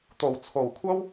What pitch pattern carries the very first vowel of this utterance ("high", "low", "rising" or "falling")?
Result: low